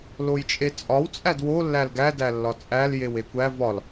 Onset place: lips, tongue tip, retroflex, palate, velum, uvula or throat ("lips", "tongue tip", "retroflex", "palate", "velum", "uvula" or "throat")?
tongue tip